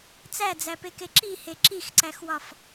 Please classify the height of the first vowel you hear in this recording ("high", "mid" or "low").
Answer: low